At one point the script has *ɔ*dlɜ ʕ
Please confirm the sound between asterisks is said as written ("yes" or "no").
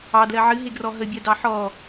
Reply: no